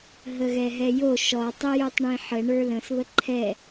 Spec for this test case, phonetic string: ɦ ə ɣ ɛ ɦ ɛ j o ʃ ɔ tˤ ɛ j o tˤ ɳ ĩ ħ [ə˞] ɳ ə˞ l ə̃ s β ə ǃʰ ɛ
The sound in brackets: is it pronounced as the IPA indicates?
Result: no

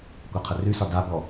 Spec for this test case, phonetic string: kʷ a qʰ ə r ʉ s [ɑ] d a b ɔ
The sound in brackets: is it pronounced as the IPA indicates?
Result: no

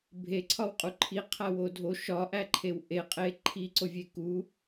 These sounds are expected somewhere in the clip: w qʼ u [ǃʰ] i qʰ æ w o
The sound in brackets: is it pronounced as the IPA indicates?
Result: yes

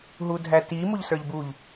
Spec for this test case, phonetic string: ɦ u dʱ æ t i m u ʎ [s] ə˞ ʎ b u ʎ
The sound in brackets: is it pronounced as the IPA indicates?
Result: yes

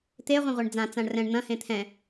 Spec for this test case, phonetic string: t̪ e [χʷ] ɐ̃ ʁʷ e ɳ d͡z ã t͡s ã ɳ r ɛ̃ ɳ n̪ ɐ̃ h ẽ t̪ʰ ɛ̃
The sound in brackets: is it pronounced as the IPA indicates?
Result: no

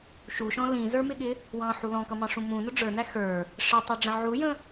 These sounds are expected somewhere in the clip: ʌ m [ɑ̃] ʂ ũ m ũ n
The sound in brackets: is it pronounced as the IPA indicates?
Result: yes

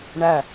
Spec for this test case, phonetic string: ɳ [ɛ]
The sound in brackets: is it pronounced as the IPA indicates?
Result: no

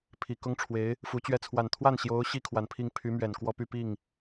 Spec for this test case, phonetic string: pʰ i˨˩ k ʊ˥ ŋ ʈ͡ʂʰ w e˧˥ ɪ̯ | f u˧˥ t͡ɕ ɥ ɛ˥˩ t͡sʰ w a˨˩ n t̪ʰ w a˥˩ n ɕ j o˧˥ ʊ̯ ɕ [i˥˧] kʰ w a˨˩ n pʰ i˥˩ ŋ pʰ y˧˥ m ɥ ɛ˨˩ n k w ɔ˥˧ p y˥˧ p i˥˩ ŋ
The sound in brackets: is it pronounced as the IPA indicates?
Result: no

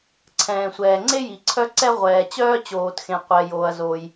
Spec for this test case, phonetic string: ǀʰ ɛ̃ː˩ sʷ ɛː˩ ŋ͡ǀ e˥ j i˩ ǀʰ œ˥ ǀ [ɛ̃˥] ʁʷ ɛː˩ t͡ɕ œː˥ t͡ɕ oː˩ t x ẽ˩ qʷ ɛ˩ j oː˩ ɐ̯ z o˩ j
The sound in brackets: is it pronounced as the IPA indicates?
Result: no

